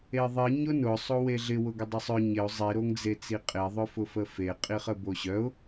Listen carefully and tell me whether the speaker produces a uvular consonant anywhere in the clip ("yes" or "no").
yes